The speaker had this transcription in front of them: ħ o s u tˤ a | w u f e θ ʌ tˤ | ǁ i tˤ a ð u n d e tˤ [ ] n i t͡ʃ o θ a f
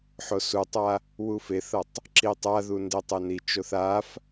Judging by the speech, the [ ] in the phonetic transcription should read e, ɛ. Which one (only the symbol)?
ɛ